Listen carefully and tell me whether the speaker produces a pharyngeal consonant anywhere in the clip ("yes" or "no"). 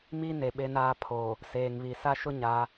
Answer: no